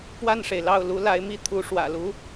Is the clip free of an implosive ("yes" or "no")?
yes